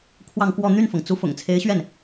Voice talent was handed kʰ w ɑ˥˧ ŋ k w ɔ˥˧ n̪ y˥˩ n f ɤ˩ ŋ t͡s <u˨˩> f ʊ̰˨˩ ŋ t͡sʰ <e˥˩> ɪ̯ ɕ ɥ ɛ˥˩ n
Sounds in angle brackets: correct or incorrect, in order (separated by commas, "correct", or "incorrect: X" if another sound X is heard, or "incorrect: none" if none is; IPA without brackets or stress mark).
incorrect: u˧˥, incorrect: e˧˥